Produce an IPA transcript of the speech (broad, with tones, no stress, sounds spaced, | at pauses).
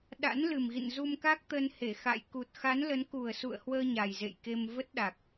ɗ a̰˧˥ n l ɨ˨˩ m ɣ ḭ˧˨ n z u˧ m k a˦˥ k̚ t̪ ə˧ n h e˧˩ x a̰˧˨ j k u˨˩ t̚ x a˨˦ n l ə˨˦ n k u˨˩ ə̯ s ṵ˧˨ ə̯ h w əː˧ ɲ a˨˩ j z ḛ˧˨ j k e˧ m v ə˦˥ t̚ ɗ a˨˩ k̚